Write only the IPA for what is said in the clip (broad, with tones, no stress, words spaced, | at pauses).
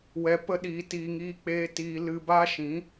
wɛ˧pə˦ɗiː˧tiː˧ ŋiː˧k͡peː˧ tiː˧ lɨ˧ba˦ʃĩ˨˦